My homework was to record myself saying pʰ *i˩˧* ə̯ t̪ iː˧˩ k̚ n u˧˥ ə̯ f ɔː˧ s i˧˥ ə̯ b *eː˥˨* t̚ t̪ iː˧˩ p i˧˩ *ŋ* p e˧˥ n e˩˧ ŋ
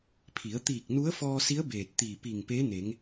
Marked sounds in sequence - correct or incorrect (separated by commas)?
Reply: correct, incorrect, correct